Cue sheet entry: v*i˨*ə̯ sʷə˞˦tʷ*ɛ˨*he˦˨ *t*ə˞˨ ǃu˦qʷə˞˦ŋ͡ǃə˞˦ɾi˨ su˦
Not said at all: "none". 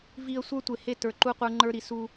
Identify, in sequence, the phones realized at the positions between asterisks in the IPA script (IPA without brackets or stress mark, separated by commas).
i˨, e˨, t